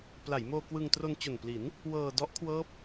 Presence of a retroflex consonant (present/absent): absent